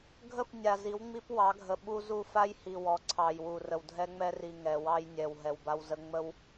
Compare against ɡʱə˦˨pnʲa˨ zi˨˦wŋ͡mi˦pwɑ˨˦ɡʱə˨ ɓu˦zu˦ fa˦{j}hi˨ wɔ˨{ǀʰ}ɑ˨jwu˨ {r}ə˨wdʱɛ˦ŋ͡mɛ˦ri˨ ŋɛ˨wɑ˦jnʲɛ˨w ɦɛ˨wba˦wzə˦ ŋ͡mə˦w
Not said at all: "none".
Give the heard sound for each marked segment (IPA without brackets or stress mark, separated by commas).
j, ǀʰ, r